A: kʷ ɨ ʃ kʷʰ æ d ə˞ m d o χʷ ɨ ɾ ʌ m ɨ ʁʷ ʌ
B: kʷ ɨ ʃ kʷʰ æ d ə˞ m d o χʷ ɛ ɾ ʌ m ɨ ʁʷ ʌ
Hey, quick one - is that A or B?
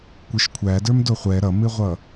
B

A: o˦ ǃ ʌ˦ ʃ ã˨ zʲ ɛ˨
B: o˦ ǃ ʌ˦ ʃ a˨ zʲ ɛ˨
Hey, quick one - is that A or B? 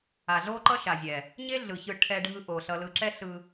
B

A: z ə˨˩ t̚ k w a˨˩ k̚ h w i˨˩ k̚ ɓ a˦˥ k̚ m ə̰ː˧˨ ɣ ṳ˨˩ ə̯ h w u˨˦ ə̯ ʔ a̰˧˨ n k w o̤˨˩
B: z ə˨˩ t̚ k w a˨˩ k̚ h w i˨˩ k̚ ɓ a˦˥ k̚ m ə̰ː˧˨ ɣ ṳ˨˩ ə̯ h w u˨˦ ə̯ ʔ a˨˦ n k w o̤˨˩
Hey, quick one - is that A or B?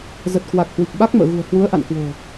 A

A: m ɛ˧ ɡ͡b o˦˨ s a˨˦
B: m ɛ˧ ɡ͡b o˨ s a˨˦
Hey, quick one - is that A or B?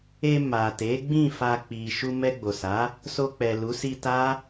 B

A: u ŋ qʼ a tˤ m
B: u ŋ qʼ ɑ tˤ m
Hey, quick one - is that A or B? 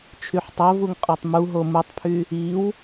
B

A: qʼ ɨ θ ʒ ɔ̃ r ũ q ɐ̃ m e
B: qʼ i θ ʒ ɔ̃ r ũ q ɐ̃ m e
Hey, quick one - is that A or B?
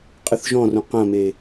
A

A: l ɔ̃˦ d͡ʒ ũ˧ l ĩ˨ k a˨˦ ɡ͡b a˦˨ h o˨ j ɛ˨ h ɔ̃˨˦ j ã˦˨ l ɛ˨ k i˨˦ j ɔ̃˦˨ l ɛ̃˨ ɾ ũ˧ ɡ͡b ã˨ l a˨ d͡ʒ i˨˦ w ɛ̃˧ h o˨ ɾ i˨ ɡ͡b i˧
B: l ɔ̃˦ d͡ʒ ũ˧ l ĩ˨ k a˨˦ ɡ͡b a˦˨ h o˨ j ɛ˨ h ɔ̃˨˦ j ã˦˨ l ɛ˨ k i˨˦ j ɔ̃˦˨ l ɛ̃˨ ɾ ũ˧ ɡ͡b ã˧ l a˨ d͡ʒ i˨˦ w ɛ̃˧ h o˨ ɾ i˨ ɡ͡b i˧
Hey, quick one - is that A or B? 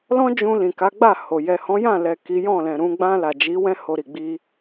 B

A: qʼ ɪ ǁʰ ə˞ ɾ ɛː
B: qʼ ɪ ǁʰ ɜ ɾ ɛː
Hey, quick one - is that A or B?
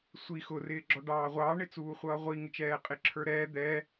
A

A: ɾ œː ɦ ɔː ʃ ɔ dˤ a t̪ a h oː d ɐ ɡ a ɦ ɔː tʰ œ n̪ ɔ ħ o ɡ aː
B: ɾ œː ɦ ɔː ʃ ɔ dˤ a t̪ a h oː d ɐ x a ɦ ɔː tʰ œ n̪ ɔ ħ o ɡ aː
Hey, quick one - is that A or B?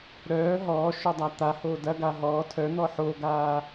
A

